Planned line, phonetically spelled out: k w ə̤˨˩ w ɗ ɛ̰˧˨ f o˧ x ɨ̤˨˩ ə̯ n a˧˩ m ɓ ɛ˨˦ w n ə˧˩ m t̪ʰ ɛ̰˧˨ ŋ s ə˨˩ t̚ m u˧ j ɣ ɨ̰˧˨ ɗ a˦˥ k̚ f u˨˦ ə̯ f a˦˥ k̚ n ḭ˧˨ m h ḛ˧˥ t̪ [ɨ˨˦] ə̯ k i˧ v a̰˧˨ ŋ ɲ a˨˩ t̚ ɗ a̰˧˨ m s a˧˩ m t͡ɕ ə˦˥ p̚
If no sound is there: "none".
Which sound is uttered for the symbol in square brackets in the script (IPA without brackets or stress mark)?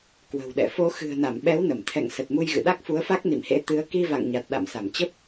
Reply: ɨ˨˦